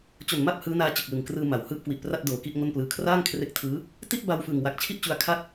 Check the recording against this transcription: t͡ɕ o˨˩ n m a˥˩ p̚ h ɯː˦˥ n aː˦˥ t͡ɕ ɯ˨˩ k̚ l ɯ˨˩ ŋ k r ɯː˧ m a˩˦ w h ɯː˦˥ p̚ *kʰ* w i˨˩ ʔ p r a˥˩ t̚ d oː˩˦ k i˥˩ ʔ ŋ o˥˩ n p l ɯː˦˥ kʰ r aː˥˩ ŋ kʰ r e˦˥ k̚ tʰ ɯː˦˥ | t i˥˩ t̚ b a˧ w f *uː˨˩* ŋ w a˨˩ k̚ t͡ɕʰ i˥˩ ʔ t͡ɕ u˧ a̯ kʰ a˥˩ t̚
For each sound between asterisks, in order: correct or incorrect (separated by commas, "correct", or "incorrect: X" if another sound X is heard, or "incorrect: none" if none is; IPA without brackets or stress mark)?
incorrect: k, incorrect: ɯː˨˩